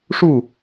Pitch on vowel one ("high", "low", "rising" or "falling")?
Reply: falling